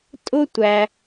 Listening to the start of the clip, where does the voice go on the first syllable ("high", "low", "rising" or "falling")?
high